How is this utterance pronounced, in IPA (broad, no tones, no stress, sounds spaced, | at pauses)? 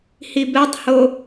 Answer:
h i b ɛ tˤ h o